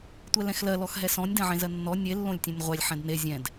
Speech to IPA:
tʷ ɛ l ɛ̃ x l ɜ l ɔ x ɦ ɛ s ɔ̃ nʲ d ɛ̃ ʕ ẽ z ɜ nː ɔ nʲ e lː õ lʲ tʲ ẽ nʲ ʁʷ ɛ lʲ ħ ɛ̃ d n e zʲ ɛ̃ d

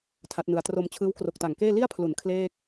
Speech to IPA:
tʰ a˦˥ t̚ n ɯ˧ a̯ t r o˧ m t͡ɕʰ ɯː˦˥ w k r o˨˩ k̚ t a˨˩ ŋ k eː˥˩ l i˥˩ a̯ pʰ l u˩˦ n kʰ l eː˥˩ k̚

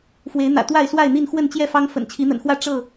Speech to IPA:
f w e˨˦ ɪ̯ n̪ ä̰˨˩ t̪ w a˥˨ ɪ̯ s w a˥˨ ɪ̯ n̪ i˥˨ n x w ə˥˨ n t͡ɕ j ɛ˥˨ f ɑ˦ ŋ f ə̰˨˩ n t͡ɕʰ i˨˦ n̪ ə̰˨˩ n x w ä˥˨ ʈ͡ʂ ɤ˥˨

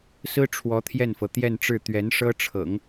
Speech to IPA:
s ɹ̩˥ ʈ͡ʂʰ w ɔ˧˥ t̪ʰ j ɛ˥˩ n f ɤ˩ t̪ j ɛ˥˧ n ʈ͡ʂ ɻ̩˥˩ t̪ ɥ ɛ˧˥ n ʂ ɤ˥ ʈ͡ʂʰ ɤ̰˨˩˦ ŋ

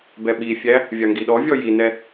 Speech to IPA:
b ɛ ɓ i fʲ æ | vʲ ɑ ŋ ɡ i ɗ ɔ vʲ ɔ j i n ɛ

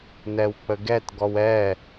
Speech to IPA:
n ɛ w k͡p ə ɡ ɛ t ɡ ɔ w ɛ

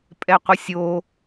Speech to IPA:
pʼ ɛ qʷ ə sʲ o

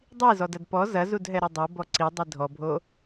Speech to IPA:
dˤ i z ɔ d ɐ d p ɔ z ɐ z u d ɦ ɛ ɾ o dˤ o b ɔ ǀ i dˤ i dʱ ɔ bʱ o

